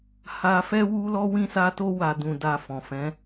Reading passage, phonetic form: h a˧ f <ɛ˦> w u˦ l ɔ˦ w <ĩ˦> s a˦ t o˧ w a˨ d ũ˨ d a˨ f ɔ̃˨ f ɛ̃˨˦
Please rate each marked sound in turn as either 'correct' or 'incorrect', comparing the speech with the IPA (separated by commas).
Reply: correct, correct